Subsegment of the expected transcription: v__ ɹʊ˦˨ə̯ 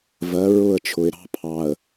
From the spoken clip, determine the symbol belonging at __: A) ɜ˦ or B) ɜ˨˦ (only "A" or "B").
B